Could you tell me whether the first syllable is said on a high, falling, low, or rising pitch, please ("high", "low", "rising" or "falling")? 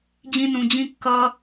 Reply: high